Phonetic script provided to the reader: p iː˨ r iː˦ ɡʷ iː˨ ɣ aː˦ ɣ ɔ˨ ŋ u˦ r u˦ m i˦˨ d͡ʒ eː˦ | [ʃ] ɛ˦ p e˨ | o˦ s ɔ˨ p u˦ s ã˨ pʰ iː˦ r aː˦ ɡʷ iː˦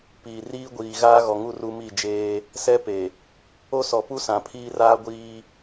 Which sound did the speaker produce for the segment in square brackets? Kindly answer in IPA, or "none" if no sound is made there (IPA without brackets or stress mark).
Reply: s